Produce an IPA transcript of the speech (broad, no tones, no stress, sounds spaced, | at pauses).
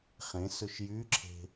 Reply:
χ ẽ s ɵ ʃ j y ǁʰ e̤